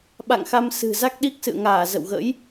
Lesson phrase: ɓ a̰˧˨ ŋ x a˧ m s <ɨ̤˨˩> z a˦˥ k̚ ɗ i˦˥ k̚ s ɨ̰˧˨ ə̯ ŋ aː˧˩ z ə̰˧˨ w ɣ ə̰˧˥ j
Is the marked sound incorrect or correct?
correct